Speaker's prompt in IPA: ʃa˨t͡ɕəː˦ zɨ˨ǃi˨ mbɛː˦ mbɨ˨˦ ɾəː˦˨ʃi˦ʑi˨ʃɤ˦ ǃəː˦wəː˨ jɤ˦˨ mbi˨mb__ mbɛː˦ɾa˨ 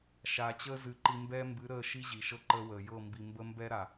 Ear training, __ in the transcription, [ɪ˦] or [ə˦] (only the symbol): ə˦